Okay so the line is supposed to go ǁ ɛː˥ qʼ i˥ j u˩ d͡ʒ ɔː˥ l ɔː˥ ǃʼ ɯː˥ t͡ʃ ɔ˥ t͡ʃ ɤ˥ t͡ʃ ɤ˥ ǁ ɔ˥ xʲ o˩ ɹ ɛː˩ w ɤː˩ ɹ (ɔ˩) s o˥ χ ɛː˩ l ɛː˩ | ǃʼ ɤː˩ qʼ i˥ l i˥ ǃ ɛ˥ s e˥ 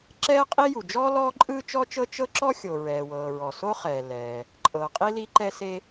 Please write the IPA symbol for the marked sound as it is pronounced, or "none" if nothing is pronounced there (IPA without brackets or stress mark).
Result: ɔ˩